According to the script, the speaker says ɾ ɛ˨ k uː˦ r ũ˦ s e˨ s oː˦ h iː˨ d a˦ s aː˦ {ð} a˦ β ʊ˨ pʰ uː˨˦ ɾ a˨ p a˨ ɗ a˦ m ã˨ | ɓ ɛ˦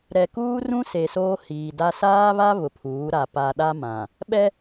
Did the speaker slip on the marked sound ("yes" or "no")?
yes